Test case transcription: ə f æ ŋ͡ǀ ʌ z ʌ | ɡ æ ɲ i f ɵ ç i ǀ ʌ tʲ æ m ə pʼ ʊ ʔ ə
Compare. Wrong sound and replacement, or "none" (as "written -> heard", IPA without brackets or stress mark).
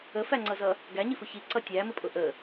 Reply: ɵ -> ʊ